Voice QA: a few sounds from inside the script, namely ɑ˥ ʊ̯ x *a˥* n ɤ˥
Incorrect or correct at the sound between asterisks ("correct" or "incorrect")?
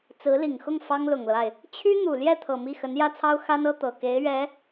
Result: correct